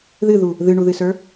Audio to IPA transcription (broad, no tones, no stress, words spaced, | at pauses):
ðɨðu | ðɨɳuðɨsə˞